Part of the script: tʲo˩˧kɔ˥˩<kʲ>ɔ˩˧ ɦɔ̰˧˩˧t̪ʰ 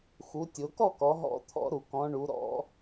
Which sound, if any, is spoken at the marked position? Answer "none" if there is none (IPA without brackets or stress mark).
k